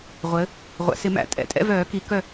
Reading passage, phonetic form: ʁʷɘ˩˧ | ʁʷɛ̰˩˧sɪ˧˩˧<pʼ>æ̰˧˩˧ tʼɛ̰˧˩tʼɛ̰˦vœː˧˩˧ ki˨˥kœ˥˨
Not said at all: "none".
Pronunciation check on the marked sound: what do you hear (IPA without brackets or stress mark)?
m